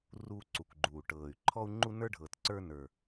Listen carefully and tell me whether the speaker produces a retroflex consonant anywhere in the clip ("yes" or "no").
yes